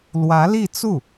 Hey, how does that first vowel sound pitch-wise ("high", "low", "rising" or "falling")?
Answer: rising